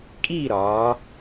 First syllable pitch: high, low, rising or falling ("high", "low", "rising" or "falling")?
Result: falling